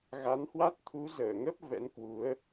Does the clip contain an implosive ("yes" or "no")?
no